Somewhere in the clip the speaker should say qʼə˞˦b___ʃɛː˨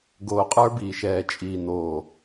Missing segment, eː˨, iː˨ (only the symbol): iː˨